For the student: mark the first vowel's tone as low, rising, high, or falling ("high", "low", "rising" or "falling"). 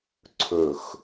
falling